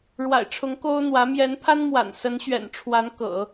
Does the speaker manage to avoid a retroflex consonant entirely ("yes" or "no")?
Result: no